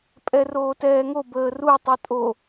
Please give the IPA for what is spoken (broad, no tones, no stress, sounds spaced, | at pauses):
pʼ ɛ r oː t ɛː ŋ o b əː r u tˤ u tʼ o